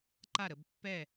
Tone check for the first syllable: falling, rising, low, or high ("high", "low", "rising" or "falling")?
falling